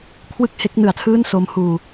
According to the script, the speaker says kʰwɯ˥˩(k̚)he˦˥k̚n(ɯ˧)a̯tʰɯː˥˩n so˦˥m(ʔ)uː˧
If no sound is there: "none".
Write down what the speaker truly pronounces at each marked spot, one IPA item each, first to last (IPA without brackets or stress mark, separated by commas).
k̚, ɯ˨˩, h